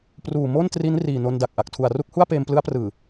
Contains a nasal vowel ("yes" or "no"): no